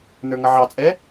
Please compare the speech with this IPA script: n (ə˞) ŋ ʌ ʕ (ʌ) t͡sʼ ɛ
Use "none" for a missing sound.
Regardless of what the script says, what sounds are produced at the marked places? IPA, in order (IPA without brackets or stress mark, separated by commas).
ə˞, ɑ